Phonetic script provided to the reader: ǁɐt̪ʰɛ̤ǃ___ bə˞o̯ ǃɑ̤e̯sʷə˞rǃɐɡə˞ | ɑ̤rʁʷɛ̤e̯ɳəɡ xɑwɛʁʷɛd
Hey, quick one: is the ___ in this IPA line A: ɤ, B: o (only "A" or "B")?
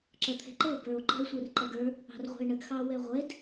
A